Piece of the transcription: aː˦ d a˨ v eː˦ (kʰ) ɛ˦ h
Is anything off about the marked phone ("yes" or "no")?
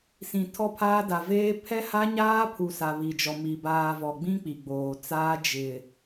yes